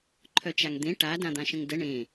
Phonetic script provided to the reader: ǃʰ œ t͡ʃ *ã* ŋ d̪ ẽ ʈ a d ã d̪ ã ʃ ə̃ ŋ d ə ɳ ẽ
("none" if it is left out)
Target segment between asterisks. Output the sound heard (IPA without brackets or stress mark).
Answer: a